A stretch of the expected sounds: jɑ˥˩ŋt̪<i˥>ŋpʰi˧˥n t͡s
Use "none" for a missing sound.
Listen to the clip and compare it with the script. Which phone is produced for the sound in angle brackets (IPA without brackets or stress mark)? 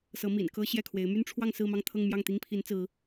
i˥